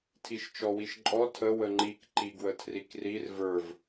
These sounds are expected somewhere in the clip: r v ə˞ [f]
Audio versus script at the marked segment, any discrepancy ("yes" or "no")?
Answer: yes